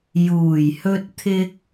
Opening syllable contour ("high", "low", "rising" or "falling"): low